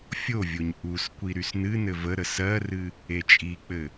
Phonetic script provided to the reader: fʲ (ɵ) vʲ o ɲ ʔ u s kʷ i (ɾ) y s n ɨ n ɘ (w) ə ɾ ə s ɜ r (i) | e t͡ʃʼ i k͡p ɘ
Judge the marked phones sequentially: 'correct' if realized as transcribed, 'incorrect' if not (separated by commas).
incorrect, correct, incorrect, incorrect